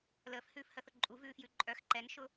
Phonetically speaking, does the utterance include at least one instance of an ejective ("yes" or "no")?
yes